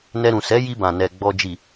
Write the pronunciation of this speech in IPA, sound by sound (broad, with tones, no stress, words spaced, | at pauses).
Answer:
nɛ˧ɾũ˨ sɛ˨˦ji˧bã˨ nɛ˨ ɡ͡bɔ˨d͡ʒi˨